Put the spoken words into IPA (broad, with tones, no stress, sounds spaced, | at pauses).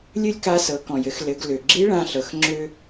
lʲ ɨ˥ lʲ k a˧˥ s ɤ˩˧ k ɔ̃˩ j ɘ˩˧ x l ɘ˩˧ ɡ l ø˩ ɡ͡ǁ i˧˥ ɭ ã˧ ɬ ɤ˩˧ x ŋ͡ǁ ø˧